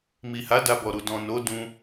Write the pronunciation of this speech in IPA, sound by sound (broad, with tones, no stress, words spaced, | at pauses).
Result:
mi˨ha˨˦ da˧bɔ˨ɾu˨ dɔ̃˨no˨˦ dũ˧